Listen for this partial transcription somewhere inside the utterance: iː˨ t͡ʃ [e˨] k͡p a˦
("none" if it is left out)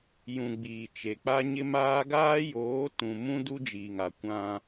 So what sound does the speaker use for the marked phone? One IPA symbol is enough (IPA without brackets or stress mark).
e˨